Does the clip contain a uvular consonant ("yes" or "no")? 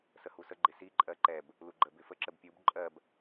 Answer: no